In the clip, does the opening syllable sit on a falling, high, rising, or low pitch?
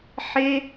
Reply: high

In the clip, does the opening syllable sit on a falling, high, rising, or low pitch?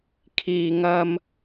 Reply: low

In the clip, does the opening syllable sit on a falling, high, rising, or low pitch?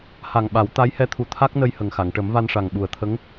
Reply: low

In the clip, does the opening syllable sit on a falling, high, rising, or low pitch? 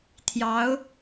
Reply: rising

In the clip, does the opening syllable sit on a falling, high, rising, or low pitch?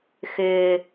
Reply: low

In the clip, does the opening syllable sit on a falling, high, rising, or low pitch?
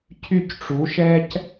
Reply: falling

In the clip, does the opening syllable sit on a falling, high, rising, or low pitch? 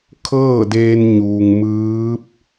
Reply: falling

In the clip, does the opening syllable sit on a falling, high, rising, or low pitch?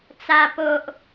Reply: high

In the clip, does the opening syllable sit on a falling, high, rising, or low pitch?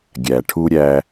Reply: low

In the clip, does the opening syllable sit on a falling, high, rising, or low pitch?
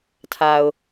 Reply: low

